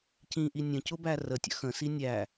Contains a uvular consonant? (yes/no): no